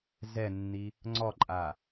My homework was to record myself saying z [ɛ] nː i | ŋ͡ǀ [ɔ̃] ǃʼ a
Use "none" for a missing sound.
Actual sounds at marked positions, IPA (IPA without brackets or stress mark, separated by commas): ɛ, ɔ